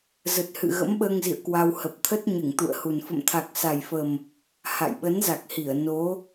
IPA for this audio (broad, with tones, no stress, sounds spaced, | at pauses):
z ə˨˩ t̚ h ɨ̰˧˨ ɣ ə̰˧˥ m ɓ əː˧ ŋ z ḭ˧˨ ə̯ k w a˧ w h ə˨˩ p̚ t̪ʰ ə˦˥ t̚ ɲ ɨ˧˩ ŋ t̪ ṵ˧˨ ə̯ h u˨˩ n f ə̰˧˨ m t̪ʰ a˨˩ k̚ s a˨˩ j f ə˨˩ m | h a̰˧˨ j ɓ ə˨˦ n z a˨˩ k̚ h i˧˩ ə̯ n o˨˦